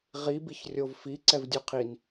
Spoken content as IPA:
ʁ i b i ç rʲ o v f i ǀ ɛ v dʲ u qʰ i n

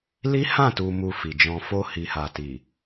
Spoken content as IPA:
l i˦ h ã˦˨ t u˨ m u˨ f i˨ d͡ʒ ɔ̃˧ f o˧ h i˨ h a˨ t i˨

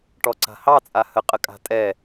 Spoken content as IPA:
ʈ ɔ ǀ a̤ h ɑ t͡sʼ a h ə qʼ ə kʼ a̤ tʼ ɛ

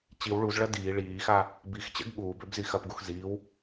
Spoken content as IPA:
t͡ɕ i w ɭ u z ɭ ɐ d iː ɭ iː x a | b i x t͡ɕ ɛ̰ ɡ ɠ uː b ø b z i x ɐ p ɡ u x z iː w

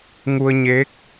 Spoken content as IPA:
ŋ u˧ ə̯ ɲ eː˧˥ k̚

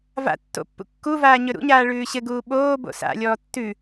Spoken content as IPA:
v a̰ tː o̰ pː ṵ kː u v aː ɲ ɵ ɾ ṵ ɲ aː ɭ ʉː ɕ ɘ ɡ uː ɓ oː b o̰ s a̰ lʲ ɔː tː ʉ

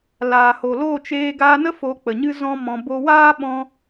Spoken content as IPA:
l aː˨ h o˨ l o˦˨ t͡ʃ eː˧ ɡ aː˧ n ə˦ f o˧ k͡p ə˨ ɲ ɨ˦ z ɔ̃˦ m ɔ̃˧ b o˧ w aː˦ ɓ ɔ̃˧

